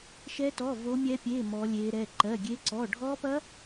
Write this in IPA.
ʃ ɛ˦˥ t ɔ˧˥˧ v o˦˥ mʲ ɛ˦˥ pʲ e˧˥˧ m ɔ˦˥ lʲ e˦˥ ɾ ɛ˧˥˧ ǃ ɜ˧˥˧ ɡʲ e˦˥ ǀ ɔ˧˥˧ ɖʱ ɔ˦˥ p ɐ˦˥

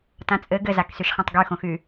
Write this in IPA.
t ã t͡sʼ ɘ ɡ ɘ z a k s y ʃ χ ẽ tˤ ɡ y x õ x y

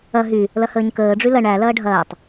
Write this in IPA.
ɐ ɦ y | l ɐ h əː ɲ k əː ɖ͡ʐ y l ɐ ɳ æ l ɐː ɖʱ ɐː tˤ

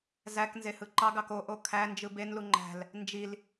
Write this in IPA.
z æ k n z e h ɯ ǃ ɑ ɡ ɑ k o ʔ o kʰ æ n d͡ʒ ɯ b e n l u ŋ͡ǃ æ̤ l | n d͡ʒ i l

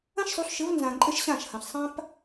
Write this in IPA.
ɐ̃˦ ʃ sˤ u˨˦ ɬ ʃ ɘ˨˦ v n z ã˨ ǃʼ ɘ˦ ʃ ɕ ã˦˨ ʃ h ɐ̃˨ ɬ sˤ ã˦ p

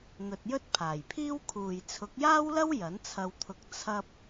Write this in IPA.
n̪ ɵ˨ t̚ j ɵ˥ t̚ pʰ aː˨˩ j pʰ iː˥ w kʰ uː˨ j t͡sʰ ʊ˨˥ k̚ j aː˥ w l ɐ˥ w j ɐ˨˥ n t͡sʰ ɐ˧ w t̪ʰ ʊ˧ k̚ t͡sʰ ɐ˧ p̚

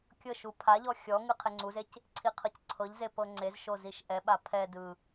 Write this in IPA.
kʲ ɤ ʃ u pʰ a ʎ ɔ xʲ ɔ ŋ ɯ qʰ e ŋ͡ǀ u z e c | ǀʰ i qʰ ɤ c ǀʰ ɤ ʎ z e p ɤ ŋ͡ǀ e z ʃ o z i ʃ ʔ ɛ ɓ a pʰ ɛ d ɯ

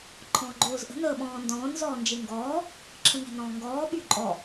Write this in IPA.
ǃʰ ɔ̃ː ɡ͡ǃ oː z ʔ ə̤ n əː ɓ ɔ̃ː n d ɔ̃ː n z ɔː n d͡ʒ e ŋ ɡ ɔː | ǁʰ ə̃ n ɛ̤ n ɔ̃ː ŋ ɡ ɔː ɓ y ǃʼ ɔ

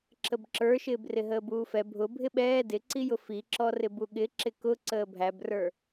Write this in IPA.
ǁ ə b ǁ ə˞ ʃ ɪː b r ɪ ɦ əː b uː f ɛ bʱ ʊ bʱ ɪ ɓ ɛː d ɪ ǀ i j ʊ f i ǁ ɔ r ɪ b u ɠ ɪ ǁ ɪ k ʊ ǀ əː bʱ æ b r ə˞

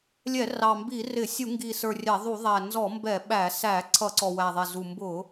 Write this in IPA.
lʲ ɛ˧˩˧ r ɑ˨˩ m b i˧˩˧ r ɪ˧˩˧ sʲ u˧˩˧ ŋ ɡ i˨˩ s ə˞˨˩ rʲ æ˧˩˧ ðˤ u˧˩˧ ðˤ æ˨˩ n z ɔ˧˩˧ m b ɛ˧˩˧ ɓ æ˧˩˧ s æ˧˩˧ ǀʰ ʌ˧˩˧ ǀ ɔ˨˩ w æ˨˩ ðˤ ɛ˨˩ z u˨˩ m b ʊ˧˩˧

